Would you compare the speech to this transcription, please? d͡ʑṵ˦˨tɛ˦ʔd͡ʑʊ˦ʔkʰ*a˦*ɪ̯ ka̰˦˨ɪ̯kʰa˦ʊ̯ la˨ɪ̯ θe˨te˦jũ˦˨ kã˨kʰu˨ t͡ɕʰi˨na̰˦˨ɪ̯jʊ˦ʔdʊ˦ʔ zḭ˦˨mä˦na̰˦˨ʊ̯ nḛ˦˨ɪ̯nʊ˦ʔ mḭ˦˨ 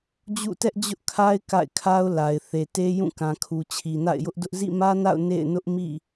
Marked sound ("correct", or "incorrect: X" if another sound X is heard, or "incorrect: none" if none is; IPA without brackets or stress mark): correct